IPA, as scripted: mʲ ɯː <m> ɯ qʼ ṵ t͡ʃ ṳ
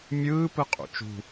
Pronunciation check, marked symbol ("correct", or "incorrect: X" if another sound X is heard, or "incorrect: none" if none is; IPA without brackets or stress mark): incorrect: p